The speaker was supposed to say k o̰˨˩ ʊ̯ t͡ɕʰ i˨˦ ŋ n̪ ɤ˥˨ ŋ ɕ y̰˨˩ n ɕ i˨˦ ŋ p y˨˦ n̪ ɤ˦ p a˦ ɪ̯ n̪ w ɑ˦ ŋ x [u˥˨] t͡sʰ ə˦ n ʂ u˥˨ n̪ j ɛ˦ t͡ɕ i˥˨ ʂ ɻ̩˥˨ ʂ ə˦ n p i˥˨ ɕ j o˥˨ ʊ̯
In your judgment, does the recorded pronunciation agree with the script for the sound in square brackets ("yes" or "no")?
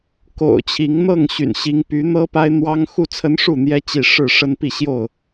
yes